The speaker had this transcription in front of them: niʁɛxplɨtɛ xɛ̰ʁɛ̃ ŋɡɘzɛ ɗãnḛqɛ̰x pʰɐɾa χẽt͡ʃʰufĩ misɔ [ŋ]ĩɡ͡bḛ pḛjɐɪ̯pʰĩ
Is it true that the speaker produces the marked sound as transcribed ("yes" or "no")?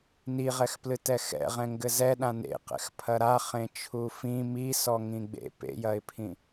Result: yes